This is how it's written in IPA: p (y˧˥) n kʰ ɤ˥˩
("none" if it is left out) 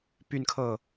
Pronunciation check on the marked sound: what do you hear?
y˥˧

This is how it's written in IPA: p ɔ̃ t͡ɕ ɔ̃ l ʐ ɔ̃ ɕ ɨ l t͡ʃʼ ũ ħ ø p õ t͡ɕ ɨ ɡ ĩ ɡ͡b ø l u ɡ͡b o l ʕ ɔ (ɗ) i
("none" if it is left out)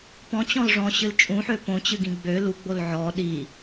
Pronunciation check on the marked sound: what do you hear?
ɗ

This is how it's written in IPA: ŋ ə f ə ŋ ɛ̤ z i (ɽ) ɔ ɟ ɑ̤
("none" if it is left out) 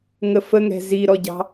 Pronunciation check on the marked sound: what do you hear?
ɾ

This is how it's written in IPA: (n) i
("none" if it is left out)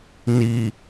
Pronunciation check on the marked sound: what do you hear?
n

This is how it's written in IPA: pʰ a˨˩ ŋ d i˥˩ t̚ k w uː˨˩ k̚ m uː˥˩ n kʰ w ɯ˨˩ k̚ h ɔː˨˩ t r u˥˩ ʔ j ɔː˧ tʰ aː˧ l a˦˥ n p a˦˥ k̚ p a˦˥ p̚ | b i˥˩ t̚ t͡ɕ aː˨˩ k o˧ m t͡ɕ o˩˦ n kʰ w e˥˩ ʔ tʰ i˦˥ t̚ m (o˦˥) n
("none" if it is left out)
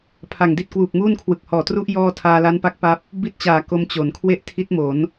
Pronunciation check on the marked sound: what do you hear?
o˩˦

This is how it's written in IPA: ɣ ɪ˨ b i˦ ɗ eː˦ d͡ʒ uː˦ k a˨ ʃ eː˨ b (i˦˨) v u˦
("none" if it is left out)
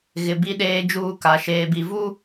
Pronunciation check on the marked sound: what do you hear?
i˨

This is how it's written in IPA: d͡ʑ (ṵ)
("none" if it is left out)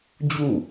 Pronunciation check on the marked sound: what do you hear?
u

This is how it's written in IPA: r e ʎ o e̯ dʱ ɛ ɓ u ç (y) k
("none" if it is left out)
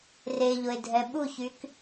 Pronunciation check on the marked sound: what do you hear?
y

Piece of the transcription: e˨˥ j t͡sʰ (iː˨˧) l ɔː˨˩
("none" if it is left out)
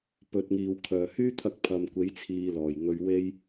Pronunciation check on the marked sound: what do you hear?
iː˧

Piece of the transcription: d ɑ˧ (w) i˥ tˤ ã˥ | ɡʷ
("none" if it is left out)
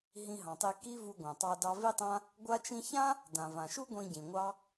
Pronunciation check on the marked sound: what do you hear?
v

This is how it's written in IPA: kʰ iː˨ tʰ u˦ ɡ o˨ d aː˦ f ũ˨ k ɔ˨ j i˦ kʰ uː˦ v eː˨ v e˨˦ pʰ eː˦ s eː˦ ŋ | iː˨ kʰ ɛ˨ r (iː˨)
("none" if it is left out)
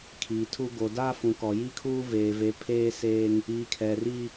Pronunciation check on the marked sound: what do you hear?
iː˦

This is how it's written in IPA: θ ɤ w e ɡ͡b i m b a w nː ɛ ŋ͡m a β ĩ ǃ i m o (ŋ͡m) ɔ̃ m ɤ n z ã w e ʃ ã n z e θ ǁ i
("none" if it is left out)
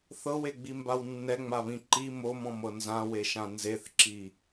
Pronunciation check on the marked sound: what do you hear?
m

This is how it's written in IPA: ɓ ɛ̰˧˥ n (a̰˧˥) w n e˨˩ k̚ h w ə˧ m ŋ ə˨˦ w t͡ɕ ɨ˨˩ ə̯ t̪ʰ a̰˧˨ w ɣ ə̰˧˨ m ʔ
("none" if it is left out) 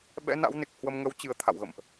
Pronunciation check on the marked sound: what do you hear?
a̰˧˥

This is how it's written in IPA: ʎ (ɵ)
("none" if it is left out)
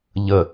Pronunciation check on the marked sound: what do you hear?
ə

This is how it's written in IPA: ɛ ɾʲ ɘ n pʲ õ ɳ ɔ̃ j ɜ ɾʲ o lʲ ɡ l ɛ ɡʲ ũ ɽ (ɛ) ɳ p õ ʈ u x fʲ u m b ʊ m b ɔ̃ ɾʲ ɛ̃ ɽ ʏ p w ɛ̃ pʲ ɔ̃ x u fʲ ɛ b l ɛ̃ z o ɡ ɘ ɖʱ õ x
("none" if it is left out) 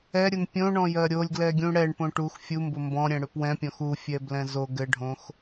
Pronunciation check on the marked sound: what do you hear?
ɛ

